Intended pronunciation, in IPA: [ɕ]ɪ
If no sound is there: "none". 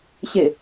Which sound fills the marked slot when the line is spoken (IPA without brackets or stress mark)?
ɕ